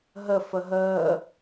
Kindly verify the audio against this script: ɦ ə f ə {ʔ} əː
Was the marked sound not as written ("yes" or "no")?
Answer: yes